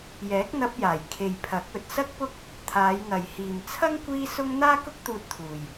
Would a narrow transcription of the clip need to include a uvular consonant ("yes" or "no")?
no